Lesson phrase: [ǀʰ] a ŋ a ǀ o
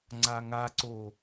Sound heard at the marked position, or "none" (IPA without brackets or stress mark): ŋ͡ǀ